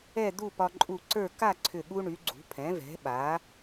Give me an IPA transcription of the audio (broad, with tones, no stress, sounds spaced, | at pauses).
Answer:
ɛ˥˧ d̪ u˥˧ p ɒ˧ ǃʼ u˧˩ ǀ ə˞˥˧ k a˥˧ ǀʰ ʏ˧˩ ɠ u˧ ɳ y˩˧ ɡ͡ǀ ṳ˩˧ pʰ ɛ̃˩˧ v ɛ̤˩˧ ɓ a˩˧